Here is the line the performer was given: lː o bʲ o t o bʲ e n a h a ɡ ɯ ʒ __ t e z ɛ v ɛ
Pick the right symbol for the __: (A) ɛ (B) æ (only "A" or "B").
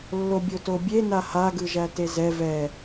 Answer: B